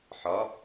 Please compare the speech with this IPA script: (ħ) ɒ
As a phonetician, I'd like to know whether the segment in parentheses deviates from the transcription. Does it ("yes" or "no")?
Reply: no